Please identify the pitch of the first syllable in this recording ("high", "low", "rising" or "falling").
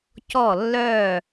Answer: falling